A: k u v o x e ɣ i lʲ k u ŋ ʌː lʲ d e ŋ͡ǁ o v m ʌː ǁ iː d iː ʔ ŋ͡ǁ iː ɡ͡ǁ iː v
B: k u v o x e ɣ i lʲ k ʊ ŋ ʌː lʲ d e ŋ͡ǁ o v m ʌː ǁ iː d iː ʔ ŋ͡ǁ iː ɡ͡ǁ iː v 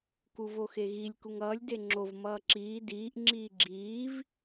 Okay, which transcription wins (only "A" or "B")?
A